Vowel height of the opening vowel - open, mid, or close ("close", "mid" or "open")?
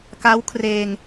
open